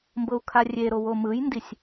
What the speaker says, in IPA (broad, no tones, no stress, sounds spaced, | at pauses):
m b ɤ u̯ kʰ a rʲ e ɾ o w o m ɯ j n d i sʲ